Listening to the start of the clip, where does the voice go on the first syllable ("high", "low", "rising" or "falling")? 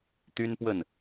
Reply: high